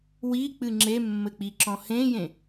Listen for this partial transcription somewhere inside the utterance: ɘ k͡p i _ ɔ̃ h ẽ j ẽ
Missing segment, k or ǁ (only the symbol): ǁ